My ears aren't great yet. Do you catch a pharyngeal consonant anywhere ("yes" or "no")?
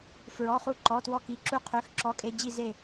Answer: no